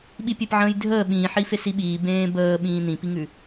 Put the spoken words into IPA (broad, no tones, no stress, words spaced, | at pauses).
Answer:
ɓipʲepʕə̃ːjdʱəː ɓĩːħi fesiɓiː bẽːbəː ɓĩːnĩpiŋʉ